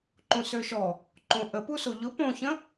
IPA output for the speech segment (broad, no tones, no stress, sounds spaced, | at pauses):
ǃ ũ s ø ʃ ɔ | ǃ õ ʔ ə p u s o ʎ ʊ p õ ç ə̃